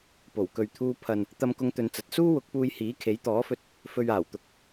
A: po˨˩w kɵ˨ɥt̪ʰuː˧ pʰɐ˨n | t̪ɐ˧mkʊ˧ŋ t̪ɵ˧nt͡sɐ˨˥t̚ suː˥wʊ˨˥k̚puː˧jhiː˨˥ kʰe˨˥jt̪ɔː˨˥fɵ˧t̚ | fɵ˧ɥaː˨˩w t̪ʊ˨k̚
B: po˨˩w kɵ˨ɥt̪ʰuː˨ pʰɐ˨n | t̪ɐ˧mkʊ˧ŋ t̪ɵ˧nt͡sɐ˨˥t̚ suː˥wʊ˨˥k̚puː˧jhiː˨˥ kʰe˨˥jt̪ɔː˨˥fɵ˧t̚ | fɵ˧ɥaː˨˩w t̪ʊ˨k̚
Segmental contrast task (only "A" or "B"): A